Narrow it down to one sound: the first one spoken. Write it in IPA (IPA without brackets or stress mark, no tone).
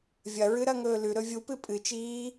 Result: vʲ